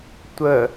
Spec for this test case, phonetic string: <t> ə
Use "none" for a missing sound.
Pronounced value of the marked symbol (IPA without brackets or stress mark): tʷ